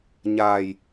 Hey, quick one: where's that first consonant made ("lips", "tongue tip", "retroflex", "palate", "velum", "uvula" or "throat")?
palate